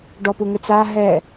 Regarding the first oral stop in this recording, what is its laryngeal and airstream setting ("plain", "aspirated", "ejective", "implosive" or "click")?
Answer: plain